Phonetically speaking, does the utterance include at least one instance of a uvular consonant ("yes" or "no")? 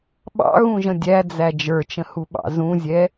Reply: no